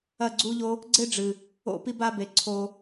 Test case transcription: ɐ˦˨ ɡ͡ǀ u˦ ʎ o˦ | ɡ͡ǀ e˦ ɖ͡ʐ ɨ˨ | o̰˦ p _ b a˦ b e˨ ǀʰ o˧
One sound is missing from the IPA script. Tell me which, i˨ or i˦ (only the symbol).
i˦